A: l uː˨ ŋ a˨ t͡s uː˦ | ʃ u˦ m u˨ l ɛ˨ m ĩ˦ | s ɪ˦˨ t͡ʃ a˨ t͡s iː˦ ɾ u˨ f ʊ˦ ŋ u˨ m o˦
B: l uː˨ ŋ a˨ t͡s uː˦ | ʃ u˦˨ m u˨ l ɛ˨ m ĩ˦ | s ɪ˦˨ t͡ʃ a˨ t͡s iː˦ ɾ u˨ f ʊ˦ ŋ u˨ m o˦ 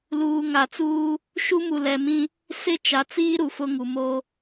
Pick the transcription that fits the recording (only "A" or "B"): A